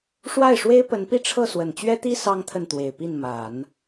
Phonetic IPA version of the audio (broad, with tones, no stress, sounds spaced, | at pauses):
ʂ w a˥˩ ɪ̯ ʂ w e˥ ɪ̯ p ə˧˥ n p i˥˧ ʈ͡ʂʰ ɤ˥˩ s w ə˨˩ n t͡ɕ ɥ ɛ˥ t̪ i˥ s ɑ˥ ŋ t̪ʰ ə˥˩ n t̪ w e˨˩ ɪ̯ p i˥˩ n m a˨˩˦ n